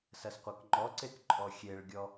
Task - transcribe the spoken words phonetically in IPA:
s ɐ s qʷ ɐ k ŋ͡ǃ ɔ ǀ e k ǃʼ ɔ xʲ e ɭ ɡʲ ɔ

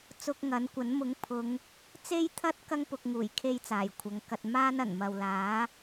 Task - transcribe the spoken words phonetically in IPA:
t͡s ʊ˧ k̚ ŋ ɐ˨˥ n kʷ ɐ˨˥ n m ʊ˨˥ ŋ pʰ ʊ˨˧ ŋ | t͡s e˥ j t̪ʰ ɐ˥ t̚ k ɐ˥ ŋ p ʊ˨ k̚ ŋ uː˨˩ j kʰ e˥ j t͡s aː˨˩ j kʷʰ ɐ˨˧ ŋ k ɐ˧ t̚ m aː˥ n ɐ˨˩ n m ɐ˨ w l aː˨˥

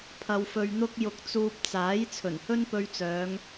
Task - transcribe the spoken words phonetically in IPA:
pʰ ɐ˧ w f ɵ˧ ɥ n̪ ʊ˥ k̚ j ʊ˧ k̚ t͡s uː˧ p̚ t͡s aː˨˥ j t͡sʰ ɵ˨˩ n h ɵ˥ n p ɵ˧ ɥ t͡s œː˨˧ ŋ

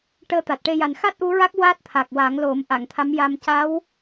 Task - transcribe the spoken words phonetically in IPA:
ʈ əː˧ t̪ a˨˩ t̚ ʈ e˧ j a˨˩ n x a˦˥ t̚ ʔ u˧˥ ɹ a˦˥ k̚ w a˦˥ t̚ t̪ʰ a˨˩ k̚ w a˨˩˦ ŋ l o˨˩˦ m ʔ a˨˩˨ ŋ t̪ʰ a˧˥ m j a˧ m c a˧˥ w

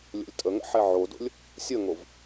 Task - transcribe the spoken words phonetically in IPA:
lʲ o̰ lʲ tʼ ə ŋ ə̰ ħ ɛ ʕ o d o̰ lʲ | sʲ ə ŋ o v

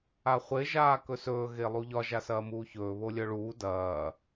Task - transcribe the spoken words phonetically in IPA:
a χʷ e ʒ aː k ɵ s ɵː ɣ e lˠ u ʎ ɒ ʒ a s ɐː m uː ç ɵː β o lʲ œ ɭ uː d ɐː

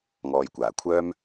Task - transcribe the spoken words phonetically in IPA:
ŋ ɔː˨ j kʷ aː˨˩ kʷʰ œː˥ m

